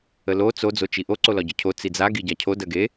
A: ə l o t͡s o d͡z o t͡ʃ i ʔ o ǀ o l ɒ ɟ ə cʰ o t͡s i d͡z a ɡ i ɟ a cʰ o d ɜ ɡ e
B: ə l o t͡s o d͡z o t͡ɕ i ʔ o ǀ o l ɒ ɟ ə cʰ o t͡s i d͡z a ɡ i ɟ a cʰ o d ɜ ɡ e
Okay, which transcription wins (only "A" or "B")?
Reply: A